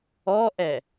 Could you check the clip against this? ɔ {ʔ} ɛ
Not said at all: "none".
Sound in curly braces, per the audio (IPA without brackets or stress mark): ʔ